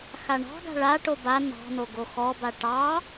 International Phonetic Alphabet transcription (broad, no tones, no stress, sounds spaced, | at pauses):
x a ɳ ɑ̤ ɡ a̤ ɭ a ʈ o b a n ɑ̤ n o ɡ o x ɔ b a ʈ ɑ